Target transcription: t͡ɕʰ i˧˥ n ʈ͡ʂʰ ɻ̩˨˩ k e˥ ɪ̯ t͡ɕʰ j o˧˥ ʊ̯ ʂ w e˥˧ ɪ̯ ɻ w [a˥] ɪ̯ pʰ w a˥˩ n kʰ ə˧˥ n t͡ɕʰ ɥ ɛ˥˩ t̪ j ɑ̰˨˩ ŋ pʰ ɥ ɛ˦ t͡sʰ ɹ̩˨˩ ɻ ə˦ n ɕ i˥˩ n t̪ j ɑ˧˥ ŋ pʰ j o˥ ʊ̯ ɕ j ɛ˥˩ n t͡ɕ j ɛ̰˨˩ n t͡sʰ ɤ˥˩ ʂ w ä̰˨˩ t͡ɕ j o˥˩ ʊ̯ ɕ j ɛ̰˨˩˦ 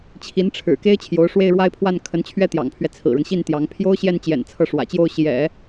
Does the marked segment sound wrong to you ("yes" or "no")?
yes